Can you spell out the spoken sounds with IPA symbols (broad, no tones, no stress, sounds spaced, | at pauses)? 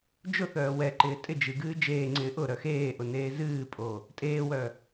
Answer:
d͡ʒ ʊ θ œː w ɛ ǃ ɪː tʼ ɪ d͡ʒ ɨ ɡ ɨː d͡ʒ eː ŋ͡ǀ ɪː ʔ ʊ ɾ œ x eː ʔ ʊ n eː z ɨː pʼ o | tʼ eː w œ